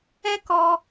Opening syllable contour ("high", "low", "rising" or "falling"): high